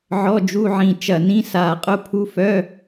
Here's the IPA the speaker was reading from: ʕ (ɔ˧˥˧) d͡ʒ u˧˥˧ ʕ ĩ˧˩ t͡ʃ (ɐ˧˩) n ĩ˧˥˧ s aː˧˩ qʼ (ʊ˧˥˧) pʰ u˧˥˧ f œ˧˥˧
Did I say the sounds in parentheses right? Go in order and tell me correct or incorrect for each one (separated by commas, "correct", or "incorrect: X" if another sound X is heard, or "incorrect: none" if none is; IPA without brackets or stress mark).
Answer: correct, correct, correct